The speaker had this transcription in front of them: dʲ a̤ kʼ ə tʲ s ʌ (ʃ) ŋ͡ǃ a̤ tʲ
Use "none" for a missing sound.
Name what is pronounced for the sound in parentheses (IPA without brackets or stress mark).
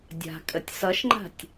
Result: ʃ